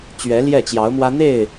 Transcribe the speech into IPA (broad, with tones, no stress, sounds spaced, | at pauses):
t͡ɕ ɥ ɛ˧˥ l j ɛ˥˩ t͡ɕ j ɑ˧˥ ʊ̯ m w ä˥ n̪ e˥˩ ɪ̯